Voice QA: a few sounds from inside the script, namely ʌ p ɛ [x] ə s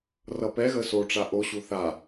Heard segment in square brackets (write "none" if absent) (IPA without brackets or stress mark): ɣ